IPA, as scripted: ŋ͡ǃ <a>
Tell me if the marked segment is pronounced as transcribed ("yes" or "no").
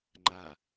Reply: yes